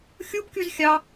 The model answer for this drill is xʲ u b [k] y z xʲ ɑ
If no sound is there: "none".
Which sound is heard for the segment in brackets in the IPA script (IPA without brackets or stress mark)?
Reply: k